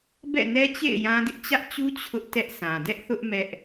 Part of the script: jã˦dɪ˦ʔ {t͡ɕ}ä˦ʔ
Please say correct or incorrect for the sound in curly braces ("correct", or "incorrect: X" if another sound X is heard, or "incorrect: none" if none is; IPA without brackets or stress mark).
correct